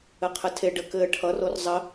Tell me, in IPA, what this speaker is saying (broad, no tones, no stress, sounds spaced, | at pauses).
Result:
ɘ qʰ ɘ tʰ e ɖ ə k ɘ ʈʰ ʌ r o r zˤ ə